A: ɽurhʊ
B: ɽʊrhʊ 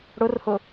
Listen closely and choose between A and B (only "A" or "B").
B